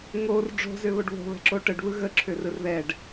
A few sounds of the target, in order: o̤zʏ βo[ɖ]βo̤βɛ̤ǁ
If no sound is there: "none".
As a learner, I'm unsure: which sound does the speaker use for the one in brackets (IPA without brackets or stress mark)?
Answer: ɖ